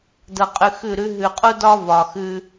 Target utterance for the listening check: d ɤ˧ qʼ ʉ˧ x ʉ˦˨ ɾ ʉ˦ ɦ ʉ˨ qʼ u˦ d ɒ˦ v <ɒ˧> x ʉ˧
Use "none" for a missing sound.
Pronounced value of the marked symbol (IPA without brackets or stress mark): ɒ˨